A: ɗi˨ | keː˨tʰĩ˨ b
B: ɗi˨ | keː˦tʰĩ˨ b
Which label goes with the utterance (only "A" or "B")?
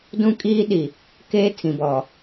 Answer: B